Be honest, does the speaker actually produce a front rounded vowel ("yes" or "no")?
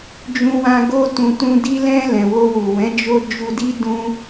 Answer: no